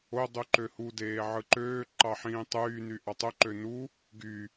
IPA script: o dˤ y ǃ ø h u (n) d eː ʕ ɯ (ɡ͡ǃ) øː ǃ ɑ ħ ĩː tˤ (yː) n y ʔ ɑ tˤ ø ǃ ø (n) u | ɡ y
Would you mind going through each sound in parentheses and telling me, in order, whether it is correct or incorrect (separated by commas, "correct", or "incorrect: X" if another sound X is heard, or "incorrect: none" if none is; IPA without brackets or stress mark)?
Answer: incorrect: none, incorrect: ǃ, correct, correct